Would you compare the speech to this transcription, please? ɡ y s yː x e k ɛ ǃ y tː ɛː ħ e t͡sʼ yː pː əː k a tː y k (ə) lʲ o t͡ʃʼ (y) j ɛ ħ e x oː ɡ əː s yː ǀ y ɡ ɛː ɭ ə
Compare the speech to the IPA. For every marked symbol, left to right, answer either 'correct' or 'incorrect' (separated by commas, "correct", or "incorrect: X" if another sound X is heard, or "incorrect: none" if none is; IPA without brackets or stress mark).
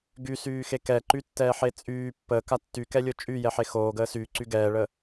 incorrect: ɛ, correct